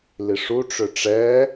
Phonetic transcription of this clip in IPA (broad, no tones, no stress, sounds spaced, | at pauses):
l i ʂ u ʈ͡ʂ ø ʈ͡ʂ ɛ